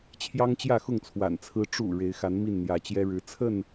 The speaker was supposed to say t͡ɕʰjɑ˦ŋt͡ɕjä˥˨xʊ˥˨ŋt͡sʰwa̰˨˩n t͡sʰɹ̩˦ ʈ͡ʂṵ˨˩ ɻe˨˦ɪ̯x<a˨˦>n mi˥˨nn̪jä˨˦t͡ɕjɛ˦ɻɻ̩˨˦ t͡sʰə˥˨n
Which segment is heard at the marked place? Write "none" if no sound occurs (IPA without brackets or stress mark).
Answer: a˨˦